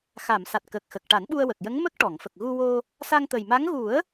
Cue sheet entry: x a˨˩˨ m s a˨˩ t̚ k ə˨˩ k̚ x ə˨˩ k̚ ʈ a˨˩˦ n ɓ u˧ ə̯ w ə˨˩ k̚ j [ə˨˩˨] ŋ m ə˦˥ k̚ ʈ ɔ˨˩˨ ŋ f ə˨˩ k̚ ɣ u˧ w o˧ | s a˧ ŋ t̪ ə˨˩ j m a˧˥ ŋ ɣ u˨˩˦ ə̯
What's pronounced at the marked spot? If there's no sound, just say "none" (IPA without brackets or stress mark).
ə˧˥